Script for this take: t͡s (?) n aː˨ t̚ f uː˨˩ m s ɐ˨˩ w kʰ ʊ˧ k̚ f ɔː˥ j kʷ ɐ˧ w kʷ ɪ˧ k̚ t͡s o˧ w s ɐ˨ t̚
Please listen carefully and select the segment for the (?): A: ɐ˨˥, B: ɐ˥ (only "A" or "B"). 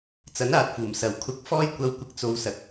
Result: A